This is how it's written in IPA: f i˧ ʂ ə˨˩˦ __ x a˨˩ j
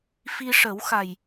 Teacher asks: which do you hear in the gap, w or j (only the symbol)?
w